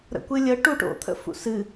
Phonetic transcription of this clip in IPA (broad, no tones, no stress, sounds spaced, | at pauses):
ɾ ə̰ kʷ ɨ lʲ ə ʈ u ʈ o̰ t̪ʰ ə̰ f ṵ s ɨ